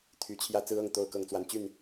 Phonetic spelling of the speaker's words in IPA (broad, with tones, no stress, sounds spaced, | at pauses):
t̪ʰ y˨˦ t͡ɕʰ j ä˥˨ t͡s ɹ̩˦ ɤ˥˨ ŋ t̪ o˥˨ ʊ̯ k ɤ˥˨ ŋ t͡s w a˨˦ n t͡ɕ y˥˨ n